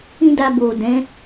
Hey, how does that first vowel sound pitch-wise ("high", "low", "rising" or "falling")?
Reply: high